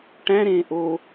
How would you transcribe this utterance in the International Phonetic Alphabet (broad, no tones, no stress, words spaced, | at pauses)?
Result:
ʈæ̃ɾẽː ʔo